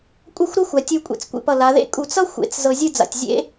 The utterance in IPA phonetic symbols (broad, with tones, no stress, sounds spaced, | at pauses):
kʷʼ ʌ˥˧ xʷ ɾ ɤ˥ xʷ a˩˧ tʲ u˧ kʷʼ ḛ˧ t͡s kʷ ḛ˧ p ʌ˧˩ l a˩˧ ð ḛ˥ kʼ u˧˩ t͡s ʌ˥ xʷ ḛ˩˧ t͡s z ɤ˧ zʲ ɯ˥˧ d͡z a̰˧˩ tʲ zʲ ḛ˥